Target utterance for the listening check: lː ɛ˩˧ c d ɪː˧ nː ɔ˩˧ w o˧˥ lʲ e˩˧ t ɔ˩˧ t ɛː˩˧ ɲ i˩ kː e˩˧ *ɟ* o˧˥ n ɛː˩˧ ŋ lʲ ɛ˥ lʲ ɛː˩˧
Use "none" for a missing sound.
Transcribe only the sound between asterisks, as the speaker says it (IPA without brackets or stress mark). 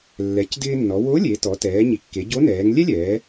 ɟ